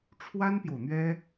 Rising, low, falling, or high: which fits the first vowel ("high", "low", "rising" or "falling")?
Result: high